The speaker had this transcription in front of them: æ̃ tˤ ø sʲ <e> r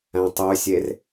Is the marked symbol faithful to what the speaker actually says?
yes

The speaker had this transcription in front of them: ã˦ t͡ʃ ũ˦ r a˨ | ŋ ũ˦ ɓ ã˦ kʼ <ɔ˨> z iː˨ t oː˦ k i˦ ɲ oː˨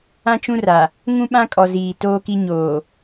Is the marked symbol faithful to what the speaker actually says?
yes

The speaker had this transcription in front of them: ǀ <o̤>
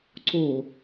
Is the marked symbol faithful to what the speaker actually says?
no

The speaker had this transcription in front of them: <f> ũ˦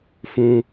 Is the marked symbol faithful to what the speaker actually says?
yes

